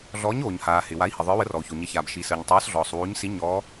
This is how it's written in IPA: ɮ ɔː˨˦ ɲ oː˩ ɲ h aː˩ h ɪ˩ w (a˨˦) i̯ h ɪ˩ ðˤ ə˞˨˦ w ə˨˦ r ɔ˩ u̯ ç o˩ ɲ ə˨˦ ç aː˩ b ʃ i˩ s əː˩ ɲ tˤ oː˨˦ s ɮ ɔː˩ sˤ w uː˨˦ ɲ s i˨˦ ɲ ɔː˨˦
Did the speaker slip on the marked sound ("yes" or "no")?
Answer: no